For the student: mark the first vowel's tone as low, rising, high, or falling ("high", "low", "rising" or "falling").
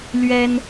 high